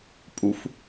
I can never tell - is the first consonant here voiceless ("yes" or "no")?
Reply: yes